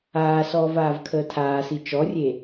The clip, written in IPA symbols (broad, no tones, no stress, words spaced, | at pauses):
aːsɔːv aːvkʰəːtʰaːsi t͡ʃɔrʲe